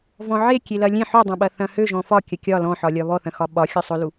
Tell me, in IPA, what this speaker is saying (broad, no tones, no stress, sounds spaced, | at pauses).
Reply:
v ɔ̃ ʕ e kʲ e l ɐ lʲ ẽ ħ ø dˤ ɐ̃ ɓ ɐ θ ɐ̃ h ø ʒ ɔ̃ f ɒ kʲ ɐ kʲ ɒ l ɔ̃ ħ ɒ lʲ ɒ β ɔ θ ɐ̃ x ɒ ɓ ɒ xʲ ɔ sˤ ɵ l u